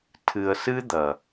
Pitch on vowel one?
low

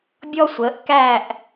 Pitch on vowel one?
high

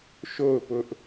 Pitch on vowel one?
falling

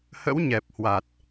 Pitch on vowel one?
rising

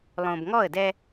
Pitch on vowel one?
low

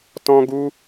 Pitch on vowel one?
high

